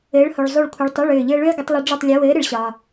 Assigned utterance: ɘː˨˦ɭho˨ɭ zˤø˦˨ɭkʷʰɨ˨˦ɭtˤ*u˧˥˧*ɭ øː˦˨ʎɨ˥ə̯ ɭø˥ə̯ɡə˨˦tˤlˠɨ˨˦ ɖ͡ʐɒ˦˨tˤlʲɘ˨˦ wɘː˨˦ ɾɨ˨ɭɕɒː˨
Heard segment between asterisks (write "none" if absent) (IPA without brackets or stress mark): o˧˥˧